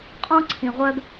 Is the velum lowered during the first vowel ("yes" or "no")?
yes